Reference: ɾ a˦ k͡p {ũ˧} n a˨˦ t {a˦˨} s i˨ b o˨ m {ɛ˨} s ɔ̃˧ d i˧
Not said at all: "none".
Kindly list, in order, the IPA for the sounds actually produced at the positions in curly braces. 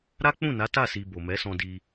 ũ˦˨, a˦˨, ɛ˨˦

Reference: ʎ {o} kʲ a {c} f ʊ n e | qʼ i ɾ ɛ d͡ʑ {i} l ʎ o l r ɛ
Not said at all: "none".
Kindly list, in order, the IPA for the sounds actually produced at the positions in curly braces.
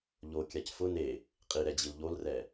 o, c, i

